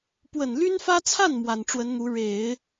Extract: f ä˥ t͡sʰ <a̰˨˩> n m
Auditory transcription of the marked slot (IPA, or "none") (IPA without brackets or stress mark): a˥˩